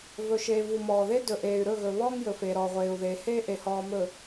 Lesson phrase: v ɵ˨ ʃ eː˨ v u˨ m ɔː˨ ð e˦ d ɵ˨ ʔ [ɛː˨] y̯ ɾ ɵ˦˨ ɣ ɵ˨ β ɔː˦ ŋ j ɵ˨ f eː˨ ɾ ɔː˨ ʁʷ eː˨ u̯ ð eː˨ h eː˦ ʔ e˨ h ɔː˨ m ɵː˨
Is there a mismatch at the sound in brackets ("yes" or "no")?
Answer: yes